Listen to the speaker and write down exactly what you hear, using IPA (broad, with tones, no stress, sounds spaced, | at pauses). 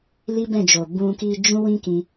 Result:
l i˦ b ɛ̃˦˨ d͡ʒ o˨ b ũ˧ k i˧ d͡ʒ ũ˦ w ĩ˦ k ĩ˧